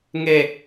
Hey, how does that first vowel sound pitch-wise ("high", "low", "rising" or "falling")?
low